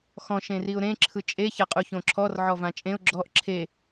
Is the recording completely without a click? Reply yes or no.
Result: no